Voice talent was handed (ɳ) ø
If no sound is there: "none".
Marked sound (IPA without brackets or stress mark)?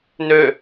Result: n